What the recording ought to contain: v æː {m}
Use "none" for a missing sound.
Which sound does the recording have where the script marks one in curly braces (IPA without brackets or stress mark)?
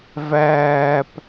p